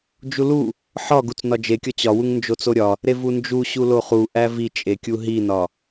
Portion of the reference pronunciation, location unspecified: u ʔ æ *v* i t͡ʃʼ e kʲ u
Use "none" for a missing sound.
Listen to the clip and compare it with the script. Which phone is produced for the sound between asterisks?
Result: v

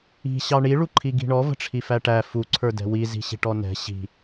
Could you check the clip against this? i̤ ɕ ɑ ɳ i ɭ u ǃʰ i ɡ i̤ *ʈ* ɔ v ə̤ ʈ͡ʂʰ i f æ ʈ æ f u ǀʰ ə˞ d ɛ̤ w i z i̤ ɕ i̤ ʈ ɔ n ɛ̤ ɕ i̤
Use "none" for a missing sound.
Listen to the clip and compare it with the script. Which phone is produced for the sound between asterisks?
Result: ɳ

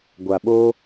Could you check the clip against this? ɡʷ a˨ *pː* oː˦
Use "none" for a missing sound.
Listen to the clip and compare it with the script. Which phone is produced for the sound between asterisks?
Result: ɓ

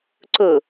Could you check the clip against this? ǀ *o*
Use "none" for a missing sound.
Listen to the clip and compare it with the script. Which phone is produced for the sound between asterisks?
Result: ɵ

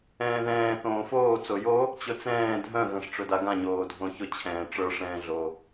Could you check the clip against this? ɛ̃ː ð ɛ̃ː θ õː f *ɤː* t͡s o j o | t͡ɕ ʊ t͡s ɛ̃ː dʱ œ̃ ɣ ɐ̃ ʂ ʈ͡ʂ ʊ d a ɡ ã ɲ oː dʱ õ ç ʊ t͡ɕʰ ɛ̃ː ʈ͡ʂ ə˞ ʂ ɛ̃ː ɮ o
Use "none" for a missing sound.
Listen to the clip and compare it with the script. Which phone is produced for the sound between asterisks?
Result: oː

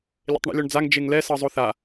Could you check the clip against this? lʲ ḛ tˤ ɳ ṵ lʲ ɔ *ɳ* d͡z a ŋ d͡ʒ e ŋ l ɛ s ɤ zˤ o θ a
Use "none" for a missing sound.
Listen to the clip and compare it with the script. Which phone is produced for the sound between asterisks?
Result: ɳ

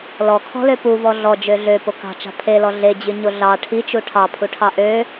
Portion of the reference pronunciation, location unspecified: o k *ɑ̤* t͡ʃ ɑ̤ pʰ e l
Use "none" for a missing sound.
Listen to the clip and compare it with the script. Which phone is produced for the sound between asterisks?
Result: ɑ̤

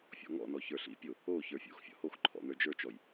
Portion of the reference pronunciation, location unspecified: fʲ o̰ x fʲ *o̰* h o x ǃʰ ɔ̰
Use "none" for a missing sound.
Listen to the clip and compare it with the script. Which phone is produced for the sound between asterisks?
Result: ɔ̰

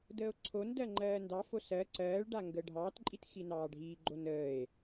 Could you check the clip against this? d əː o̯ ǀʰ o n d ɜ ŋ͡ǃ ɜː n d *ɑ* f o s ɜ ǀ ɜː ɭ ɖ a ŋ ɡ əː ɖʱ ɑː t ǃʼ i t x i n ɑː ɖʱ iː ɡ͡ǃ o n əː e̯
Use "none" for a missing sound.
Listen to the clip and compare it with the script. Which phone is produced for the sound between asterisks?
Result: ɑ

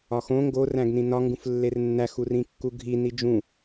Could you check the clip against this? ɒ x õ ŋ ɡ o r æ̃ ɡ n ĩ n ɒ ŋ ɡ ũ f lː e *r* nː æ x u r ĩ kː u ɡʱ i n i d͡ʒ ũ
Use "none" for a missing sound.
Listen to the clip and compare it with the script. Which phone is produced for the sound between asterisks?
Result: r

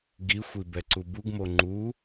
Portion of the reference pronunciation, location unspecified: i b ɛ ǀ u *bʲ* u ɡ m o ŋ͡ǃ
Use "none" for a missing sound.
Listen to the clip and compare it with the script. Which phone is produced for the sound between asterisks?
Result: b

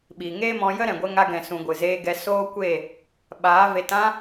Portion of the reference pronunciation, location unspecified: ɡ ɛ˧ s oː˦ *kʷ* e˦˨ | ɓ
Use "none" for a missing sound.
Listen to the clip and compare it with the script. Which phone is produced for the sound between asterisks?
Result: kʷ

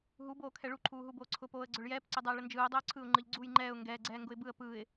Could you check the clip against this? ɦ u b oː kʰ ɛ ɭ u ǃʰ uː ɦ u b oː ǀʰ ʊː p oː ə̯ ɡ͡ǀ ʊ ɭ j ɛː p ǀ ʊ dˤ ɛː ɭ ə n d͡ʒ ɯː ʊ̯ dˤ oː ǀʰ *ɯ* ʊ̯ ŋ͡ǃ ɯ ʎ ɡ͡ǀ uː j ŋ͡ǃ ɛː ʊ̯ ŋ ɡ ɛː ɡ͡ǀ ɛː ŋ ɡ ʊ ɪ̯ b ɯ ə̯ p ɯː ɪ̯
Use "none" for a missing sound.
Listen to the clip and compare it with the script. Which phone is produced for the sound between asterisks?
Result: ɯ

